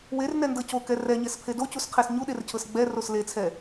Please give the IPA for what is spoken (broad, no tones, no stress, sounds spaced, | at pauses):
w e r n ɛ n d ɤ c o k ɛ r ɛ ɲ ɛ s pʰ e d o c u s qʰ e s ɲ u ɗ e r cʰ ɤ s ɡ͡b ɛ r o s l e t͡sʰ ɛ